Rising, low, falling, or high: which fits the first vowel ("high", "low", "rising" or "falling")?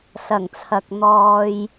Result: low